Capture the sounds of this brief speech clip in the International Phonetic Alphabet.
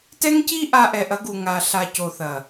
t ɛ˦ ŋ c i˦ ʔ a˧ ʔ ɛ˨ ʔ ɐ˨˦ ɡ u˨ ŋ a˨ ɬ a˨ c o˨ θ ɐ˨

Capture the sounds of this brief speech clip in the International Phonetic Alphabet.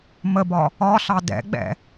m ə b ɒ | ɒ ɬ ɑ d ɛ̰ ɡ͡b ɛ̰

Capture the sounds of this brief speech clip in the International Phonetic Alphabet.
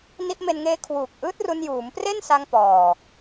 n i˦˥ ʔ m e˧ n ŋ eː˦˥ kʰ w uː˨˩ k̚ ʔ ɯː˦˥ t̚ r u˧ n j uː˩˦ m p r e˥˩ n s a˧ ŋ p ɔː˨˩

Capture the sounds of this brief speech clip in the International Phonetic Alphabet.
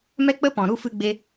m ɛ˦ k͡p ə˦ p ɔ̃˨ ɾ u˦ f ɨ˦ ɡ͡b e˦

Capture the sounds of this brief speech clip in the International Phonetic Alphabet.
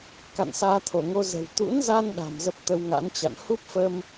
k a̰˧˨ n s aː˧ t̪ʰ o˧˩ ŋ o˧ z ə̤˨˩ w t̪ ṵ˧˥ n z a˧ n ɗ a̤˨˩ m z ə˦˥ p̚ t̪ ə˧ w ŋ a̰˧˥ n t͡ɕ a̰˧˨ n h u˦˥ p̚ f əː˧ m

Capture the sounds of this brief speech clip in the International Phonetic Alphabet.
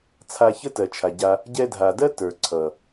t͡sʰ a˧ ç ə˦ t ɜ˨ t͡ʃʰ a˨ ɟ a˧ | ɟ ɛ˧ dʱ a˨ d ɜ˦ t ə˞˨ ǀʰ ʌ˨

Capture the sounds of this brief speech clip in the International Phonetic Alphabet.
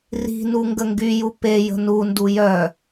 r i̤ n u ŋ ɡ ə ŋ ɡ y j u p e j ə̤ n u n d u j œ

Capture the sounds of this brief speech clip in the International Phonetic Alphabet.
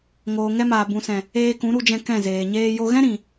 ŋ oː˨ ŋ ɛ˧ m aː˨ b ũ˨ s ɛ̃˨ | eː˧ k ũ˨˦ ɾ u˧ d͡ʒ ɛ̃˧ k ɛ̃˦˨ z eː˨ ɲ eː˧ j o˧ ɣ ɛ̃˦ ɾ ĩ˨

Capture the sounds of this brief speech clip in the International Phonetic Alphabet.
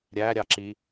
ɾʲ æ ɾʲ ɑ ǁ i

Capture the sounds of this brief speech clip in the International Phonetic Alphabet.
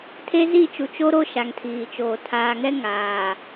tʰ e˦ z i˦˨ t͡ʃ u˨ t͡ʃ o˦ ɾ o˦ ʃ a˨ ŋ tʰ iː˨ t͡ʃ oː˨ tʰ aː˨ ŋ ɛ˦ ŋ aː˨

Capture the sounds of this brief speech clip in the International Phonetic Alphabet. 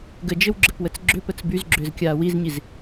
ɡ ə d͡ʒ ɘ w ɡ͡ǁ ɘ p w ə t͡s ɡ͡ǁ ʏ p ə t͡s b y z ɡ͡ǁ ʏː z kʲ aː w i z ɲ i z

